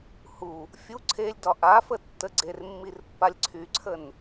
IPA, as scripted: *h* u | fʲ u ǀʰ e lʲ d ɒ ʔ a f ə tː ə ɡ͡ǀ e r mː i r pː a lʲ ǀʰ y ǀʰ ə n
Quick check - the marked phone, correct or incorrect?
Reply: correct